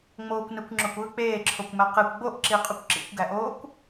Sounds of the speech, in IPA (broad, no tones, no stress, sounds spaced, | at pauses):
ŋ͡m oː kʷ n ɯ kʷ ŋ͡ǁ o kʷ ɯ k͡p eː ǁʰ o kʷ m æ q e kʷ ɡ͡b o ʔ ǁ i qʼ u kʷ ǁ ḭ kʷ ɡ æ ʔ oː kʷ